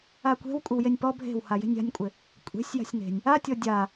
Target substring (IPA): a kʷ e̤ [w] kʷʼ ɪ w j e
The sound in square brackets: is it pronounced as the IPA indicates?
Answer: yes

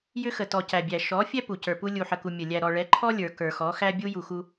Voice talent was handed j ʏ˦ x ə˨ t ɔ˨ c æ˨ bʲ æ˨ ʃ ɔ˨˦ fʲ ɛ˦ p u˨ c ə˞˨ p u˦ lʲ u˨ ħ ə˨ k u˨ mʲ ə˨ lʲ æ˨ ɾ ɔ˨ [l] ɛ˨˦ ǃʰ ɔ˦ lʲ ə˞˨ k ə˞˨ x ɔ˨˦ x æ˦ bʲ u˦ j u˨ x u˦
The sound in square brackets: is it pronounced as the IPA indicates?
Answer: no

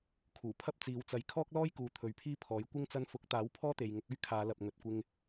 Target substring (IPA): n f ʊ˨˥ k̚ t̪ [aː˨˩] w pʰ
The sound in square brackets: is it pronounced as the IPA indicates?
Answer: no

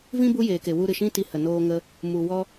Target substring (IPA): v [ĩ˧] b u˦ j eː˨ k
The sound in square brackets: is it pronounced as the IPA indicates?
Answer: no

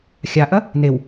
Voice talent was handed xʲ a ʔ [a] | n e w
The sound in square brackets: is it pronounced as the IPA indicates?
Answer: no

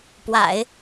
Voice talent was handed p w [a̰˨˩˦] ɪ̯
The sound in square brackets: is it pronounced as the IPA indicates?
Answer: yes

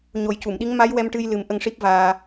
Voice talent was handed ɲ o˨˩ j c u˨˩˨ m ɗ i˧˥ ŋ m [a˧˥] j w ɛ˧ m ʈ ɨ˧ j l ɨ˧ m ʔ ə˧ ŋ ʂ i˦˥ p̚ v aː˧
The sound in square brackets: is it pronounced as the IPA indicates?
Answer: yes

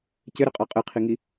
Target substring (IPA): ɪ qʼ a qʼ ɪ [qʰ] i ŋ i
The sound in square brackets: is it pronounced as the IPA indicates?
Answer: yes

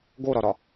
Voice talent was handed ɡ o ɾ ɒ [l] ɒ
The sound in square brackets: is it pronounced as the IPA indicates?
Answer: no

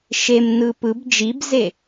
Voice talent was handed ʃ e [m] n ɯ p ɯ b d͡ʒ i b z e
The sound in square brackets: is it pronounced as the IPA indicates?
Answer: yes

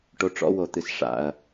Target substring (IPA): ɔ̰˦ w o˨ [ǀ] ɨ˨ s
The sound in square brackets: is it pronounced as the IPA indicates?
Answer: no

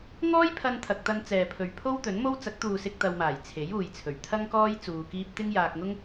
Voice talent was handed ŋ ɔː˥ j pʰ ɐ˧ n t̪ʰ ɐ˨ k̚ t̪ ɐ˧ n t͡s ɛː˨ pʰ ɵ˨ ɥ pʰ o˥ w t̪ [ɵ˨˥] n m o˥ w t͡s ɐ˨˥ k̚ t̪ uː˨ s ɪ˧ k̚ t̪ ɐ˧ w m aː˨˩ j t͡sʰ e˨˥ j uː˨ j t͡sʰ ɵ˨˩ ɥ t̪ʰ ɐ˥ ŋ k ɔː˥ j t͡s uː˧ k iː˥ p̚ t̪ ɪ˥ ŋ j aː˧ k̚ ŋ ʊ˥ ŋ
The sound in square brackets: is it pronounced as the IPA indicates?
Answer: yes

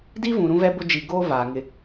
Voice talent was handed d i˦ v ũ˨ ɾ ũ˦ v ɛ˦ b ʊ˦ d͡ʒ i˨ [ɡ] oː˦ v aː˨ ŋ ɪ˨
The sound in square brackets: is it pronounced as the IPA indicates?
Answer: yes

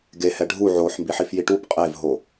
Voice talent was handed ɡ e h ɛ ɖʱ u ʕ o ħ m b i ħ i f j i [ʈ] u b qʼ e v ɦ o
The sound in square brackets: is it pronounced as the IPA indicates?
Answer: yes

